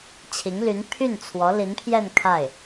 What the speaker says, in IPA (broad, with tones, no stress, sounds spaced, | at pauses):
t͡ɕʰ i˧˥ ŋ l y˧˥ n pʰ y˥˩ n t͡sʰ w ɔ˧˥ l i˧˥ n pʰ j ɛ˥˧ n kʰ a˥˩ ɪ̯